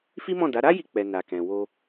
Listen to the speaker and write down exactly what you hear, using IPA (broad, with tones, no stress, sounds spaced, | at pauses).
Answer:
f i˦ m ɔ̃˦˨ d a˨˦ ɾ a˦ j i˧ k͡p ɛ˨ n a˨ k ɛ̃˨ w o˧